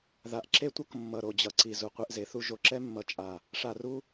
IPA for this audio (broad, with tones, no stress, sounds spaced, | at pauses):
ð a˨ ʔ ǁ e˦ tʷ ʌ˦ k mː ʌ˨ ɾ o˨ d͡ʑ ʌ˨ ǀ i˨ z u˨ qʷ e˦ ʔ z e˨˦ θ u˦ ʒ o˨ ǁ ɛ˦ mː ʌ˨ t͡ʃʼ a˨ | ʂ a˨ r u˦